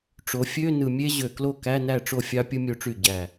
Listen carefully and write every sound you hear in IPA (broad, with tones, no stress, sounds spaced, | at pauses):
ʈ͡ʂ o˩˧ fʲ ø˧˥˧ n ɯ˨˩ mʲ e˥ ʑ ø˨˩ k l o˥˩ k æ˧˥˧ n æ˥˩ ʈ͡ʂ o˥˩ fʲ ɑ˥ pʲ ɯ˥ mʲ o˧˥˧ ʈ͡ʂ y˥˩ ɟ æ˨˩